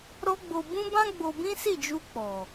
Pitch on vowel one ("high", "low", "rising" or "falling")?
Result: high